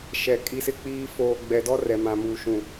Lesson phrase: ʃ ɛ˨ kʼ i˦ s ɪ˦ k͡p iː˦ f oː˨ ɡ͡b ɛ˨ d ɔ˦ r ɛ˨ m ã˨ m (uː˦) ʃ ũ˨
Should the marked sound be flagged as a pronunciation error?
yes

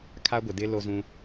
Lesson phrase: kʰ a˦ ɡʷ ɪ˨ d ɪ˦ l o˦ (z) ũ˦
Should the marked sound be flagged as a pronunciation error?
no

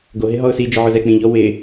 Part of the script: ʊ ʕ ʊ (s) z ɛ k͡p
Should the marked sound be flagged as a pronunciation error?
yes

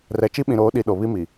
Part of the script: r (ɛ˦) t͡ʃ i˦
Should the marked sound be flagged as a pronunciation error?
yes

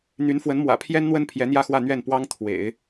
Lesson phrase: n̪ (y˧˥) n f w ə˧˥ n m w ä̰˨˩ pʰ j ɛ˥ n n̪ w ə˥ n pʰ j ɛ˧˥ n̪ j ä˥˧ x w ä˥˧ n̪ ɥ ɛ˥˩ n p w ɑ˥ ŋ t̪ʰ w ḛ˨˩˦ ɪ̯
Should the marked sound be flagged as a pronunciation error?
no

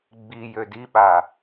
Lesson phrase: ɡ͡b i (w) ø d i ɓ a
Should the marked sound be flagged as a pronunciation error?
yes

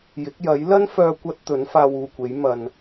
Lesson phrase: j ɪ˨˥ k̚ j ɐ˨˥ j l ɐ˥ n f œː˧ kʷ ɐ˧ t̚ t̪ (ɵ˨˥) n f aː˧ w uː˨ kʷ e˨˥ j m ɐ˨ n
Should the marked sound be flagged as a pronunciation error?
no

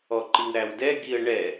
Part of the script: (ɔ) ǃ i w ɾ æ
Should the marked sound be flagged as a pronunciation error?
no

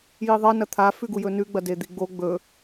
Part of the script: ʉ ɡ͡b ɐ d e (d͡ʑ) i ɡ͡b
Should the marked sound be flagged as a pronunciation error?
yes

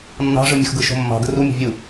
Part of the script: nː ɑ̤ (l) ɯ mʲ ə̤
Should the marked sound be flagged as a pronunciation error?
yes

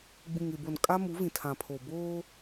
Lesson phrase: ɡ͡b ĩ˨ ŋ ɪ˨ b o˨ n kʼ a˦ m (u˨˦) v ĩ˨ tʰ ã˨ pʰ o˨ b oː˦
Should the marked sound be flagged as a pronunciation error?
no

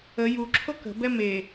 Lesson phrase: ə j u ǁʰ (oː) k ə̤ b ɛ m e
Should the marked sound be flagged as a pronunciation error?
yes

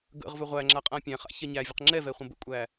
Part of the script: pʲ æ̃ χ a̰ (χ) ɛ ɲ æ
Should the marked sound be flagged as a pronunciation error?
yes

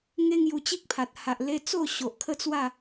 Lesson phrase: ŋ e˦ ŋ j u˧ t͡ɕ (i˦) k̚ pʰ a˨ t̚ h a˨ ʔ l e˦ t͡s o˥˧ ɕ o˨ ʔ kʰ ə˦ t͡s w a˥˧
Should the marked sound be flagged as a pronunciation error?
no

